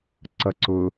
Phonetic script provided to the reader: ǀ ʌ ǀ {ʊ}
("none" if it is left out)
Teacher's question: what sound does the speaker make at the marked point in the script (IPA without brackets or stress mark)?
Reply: ʊ